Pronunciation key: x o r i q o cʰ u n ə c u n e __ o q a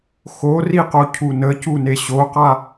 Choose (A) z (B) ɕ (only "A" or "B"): B